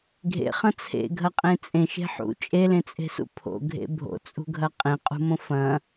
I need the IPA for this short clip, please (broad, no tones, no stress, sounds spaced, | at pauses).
ɡʱ ḛ χ ɐ̃ t͡sʰ ḛ ɡʱ ɐ qʼ ẽ t͡sʼ ẽ ʃ e̤ ħ ṵ t͡ʃʼ e l ẽ t͡sʼ e̤ s ṵ pʰ o̰ ɡʱ ḛ bʱ o̰ t͡sʼ ṳ ɡʱ ɐ qʼ ẽ qʼ ṳ m õ f ɐ̃